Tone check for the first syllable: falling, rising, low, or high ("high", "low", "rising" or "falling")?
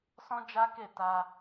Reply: high